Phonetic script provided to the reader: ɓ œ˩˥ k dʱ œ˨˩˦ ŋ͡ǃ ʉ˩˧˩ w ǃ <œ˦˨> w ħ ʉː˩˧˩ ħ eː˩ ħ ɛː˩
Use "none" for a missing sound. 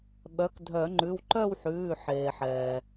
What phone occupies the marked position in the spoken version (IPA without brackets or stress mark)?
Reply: œ˦˨